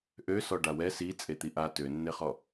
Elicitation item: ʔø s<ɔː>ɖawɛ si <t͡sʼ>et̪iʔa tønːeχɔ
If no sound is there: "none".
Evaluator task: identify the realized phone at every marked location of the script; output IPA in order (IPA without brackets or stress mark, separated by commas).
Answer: ɔ, t͡sʼ